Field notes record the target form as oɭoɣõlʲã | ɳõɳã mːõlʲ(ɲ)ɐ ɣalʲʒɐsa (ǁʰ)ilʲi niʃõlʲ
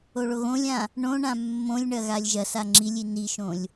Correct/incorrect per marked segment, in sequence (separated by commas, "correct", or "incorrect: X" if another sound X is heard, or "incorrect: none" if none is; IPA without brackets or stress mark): incorrect: ɳ, incorrect: ŋ͡ǁ